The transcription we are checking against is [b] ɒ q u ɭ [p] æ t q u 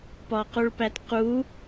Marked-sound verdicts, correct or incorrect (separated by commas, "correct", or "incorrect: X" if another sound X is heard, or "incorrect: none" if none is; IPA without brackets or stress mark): incorrect: p, correct